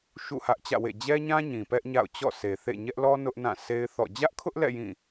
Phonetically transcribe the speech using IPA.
ʃṵ˦˨hä˦ʔt͡ɕä̰˦˨wḛ˦˨ d͡ʑɛ˦ɲã˦ ɲĩ˨pɛ˦ʔɲa̰˦˨ʊ̯ t͡ɕɔ̰˦˨sʰe˨θḛ˦˨ ɲɛ˦ʔlɔ˦ nʊ˦ʔnã˦˨ sʰe˦ɪ̯θɔ̰˦˨ d͡ʑä˦ʔkʰʊ˦ʔlɛ̰˦˨ jĩ˦˨

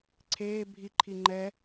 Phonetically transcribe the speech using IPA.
ǀʰeː bʱi ǃʰiŋ͡ǃɛ

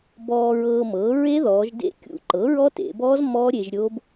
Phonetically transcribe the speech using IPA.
bɔ˧ɹɤː˧mɤː˩˥ ɹe˦˥ ðɔː˩˧ʒdḛ˦˥kʲṵ˧ ǃɤ˩˥ɹɔ˦˥tḛ˩˧bɔː˦˥z mɔː˦˥ ɾʲe˧ʒɾʲo˦˥b

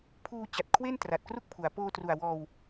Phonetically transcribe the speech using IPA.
pʰuː˧t͡ɕa˨˩t̚ kʰwe˥˩n tra˨˩t̚kru˥˩k̚pʰu˩˦a̯ poː˧tru˨˩a̯wɔː˧w

